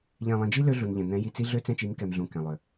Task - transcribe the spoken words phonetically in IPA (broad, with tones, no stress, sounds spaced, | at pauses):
ʎ ɛ̃˨ lˠ ĩ˨ d͡ʒ i˦ l ø˦ ɮ u˨ n ʎ ɛ̃˨ n̪ ɛ̃˨˦ j i˨ t͡s i˦ ɮ ø˦ t͡s ɛ̃˦ t͡ʃ i˨˦ m k ɛ˨ m ɮ ũ˨ k ɛ̃˨ lˠ ø˨